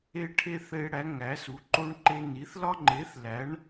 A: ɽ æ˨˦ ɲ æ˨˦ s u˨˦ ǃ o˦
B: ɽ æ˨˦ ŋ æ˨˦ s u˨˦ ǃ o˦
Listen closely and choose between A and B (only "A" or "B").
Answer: B